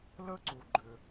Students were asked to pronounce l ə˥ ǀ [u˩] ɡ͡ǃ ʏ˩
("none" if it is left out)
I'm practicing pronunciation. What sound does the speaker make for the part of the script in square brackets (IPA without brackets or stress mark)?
u˩